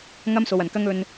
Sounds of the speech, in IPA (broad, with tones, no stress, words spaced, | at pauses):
ŋɐ˥mso˨w ɐ˨˩nkɐ˥ŋɵ˧n